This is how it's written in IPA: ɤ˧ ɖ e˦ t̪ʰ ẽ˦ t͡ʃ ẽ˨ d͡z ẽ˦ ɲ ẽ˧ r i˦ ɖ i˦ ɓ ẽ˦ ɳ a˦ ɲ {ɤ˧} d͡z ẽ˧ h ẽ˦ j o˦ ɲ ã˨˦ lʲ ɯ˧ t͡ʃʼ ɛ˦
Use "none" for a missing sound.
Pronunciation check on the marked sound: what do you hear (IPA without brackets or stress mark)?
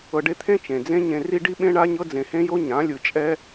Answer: ɤ˦